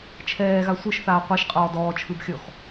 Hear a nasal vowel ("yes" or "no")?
no